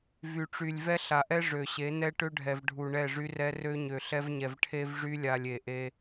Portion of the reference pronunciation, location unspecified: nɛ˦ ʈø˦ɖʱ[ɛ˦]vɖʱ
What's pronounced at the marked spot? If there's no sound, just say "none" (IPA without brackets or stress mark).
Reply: ɛ˨